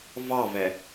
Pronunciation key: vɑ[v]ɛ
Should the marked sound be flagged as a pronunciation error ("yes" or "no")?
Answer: no